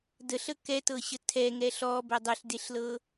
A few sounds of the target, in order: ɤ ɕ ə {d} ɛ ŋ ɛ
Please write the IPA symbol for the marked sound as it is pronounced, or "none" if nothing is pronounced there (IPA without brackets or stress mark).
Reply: tʰ